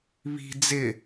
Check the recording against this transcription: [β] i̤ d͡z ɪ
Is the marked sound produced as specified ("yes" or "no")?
yes